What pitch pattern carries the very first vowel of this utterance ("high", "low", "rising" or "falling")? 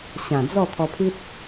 low